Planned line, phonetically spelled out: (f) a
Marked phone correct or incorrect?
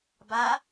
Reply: incorrect